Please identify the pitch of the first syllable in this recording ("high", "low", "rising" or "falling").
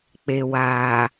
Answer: low